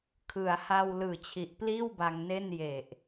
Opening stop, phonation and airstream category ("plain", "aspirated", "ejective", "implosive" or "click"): aspirated